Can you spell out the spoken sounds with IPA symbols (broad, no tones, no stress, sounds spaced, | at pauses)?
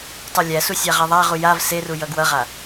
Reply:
tˤ u lʲ æ s u sʲ a ʁ a ðˤ a ʁ u j a v s e r u j ʌ ɡ w ʌ ʁ a